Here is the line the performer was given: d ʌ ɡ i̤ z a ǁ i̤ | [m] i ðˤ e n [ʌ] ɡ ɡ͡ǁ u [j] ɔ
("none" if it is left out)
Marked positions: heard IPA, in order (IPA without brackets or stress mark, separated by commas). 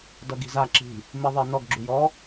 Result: m, ɔ, j